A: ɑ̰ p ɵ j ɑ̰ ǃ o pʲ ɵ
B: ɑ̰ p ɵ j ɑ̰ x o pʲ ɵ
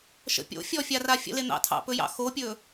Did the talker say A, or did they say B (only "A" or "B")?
B